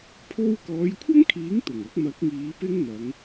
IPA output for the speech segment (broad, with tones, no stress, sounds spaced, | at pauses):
pʰ o˧ w k ɔː˨˧ j kʷʰ ɐ˥ ŋ kʰ iː˨˥ ŋ t̪ ʊ˨˩ ŋ ɐ˨˥ k̚ m ɐ˨˥ k̚ ŋ iː˨˧ p ɪ˥ ŋ n̪ ɐ˨˧ ŋ